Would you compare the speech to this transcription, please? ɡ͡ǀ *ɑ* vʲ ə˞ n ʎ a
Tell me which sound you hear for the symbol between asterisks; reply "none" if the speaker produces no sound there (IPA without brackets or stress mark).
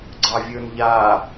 ɑ